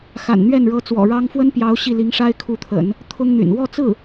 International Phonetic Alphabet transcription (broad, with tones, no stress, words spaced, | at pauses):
xa̰˨˩nn̪ɥɛ˥˩n ɻɤ˧˥t͡swɔ̰˨˩ɻɑ˥ŋ fwə˥npjɑ˧˥ʊ̯ ɕi˥˩li˧˥ŋ ʂa˥ɪ̯kʰu˧˥t̪ʰə̰˨˩˦n | t̪ʰʊ˥ŋn̪y̰˨˩n wɔ˥˧t͡sɹ̩˥˩